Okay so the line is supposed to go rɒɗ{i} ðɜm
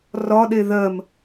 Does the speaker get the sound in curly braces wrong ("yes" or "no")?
yes